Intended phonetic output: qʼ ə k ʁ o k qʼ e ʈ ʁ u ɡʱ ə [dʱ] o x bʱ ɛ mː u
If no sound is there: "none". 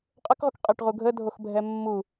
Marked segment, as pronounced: dʱ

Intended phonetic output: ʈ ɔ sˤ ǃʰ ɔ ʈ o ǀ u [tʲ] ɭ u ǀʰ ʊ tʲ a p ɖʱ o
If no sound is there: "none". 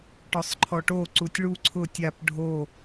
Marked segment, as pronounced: tʲ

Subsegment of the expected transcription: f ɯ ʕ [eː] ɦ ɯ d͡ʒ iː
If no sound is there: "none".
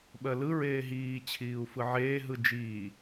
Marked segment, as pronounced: eː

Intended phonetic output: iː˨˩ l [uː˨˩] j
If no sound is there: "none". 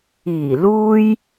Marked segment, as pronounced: uː˧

